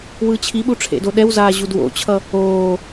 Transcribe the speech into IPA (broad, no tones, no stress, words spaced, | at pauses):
wɯt͡ɕʰiɓu ʈ͡ʂʰḛdoɗɛwzaː ʑudwo̰t͡ɕʰʌ | oː